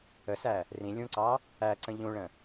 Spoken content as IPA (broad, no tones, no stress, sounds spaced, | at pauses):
ə s æ | r ĩ lʲ ũ ǀ ɑ | æ ǀ ə̃ ʎ ũ ɭ ə̃